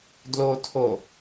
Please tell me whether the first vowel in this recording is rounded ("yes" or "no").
yes